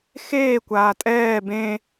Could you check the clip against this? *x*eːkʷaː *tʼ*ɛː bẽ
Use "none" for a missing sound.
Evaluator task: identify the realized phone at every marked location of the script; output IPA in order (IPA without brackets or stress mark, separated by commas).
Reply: x, tʼ